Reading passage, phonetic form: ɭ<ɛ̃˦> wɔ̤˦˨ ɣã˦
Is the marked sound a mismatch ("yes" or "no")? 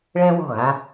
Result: no